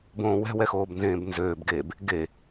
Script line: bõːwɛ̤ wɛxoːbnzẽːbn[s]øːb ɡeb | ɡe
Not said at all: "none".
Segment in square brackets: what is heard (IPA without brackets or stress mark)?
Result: z